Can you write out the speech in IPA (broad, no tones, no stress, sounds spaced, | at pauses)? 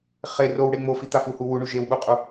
χ e r o w ɽ e ŋ͡m o f i t̪ a f u h u w u ɳ u ʒ e w ɓ u qʼ u